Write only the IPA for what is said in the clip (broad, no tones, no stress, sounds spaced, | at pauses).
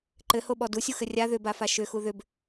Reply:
ǃ ɘ h o ɓ ɔ d u sʲ u x ɘ rʲ a ð ʏ b a f a ʃ ʏ x u ð ʏ b